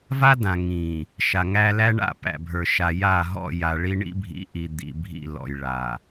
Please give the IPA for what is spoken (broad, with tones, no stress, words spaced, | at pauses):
va˦dã˨ŋĩ˨ | ʃa˨ŋæ˦ læ˦ɳa̰˦˨pæ̰˨bʱə˞˨ ʃa˨ ja˦˨ɦɔ̰˦˨ja˨ɭi˦ ɳḭ˦bʱḭ˨˦ʔi˨ d̪ḭ˨bʱḭ˦˨ lɔ̰˨jɭa˨